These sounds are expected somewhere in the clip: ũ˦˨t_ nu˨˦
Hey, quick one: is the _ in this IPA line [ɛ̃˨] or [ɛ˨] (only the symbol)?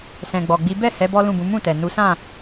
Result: ɛ˨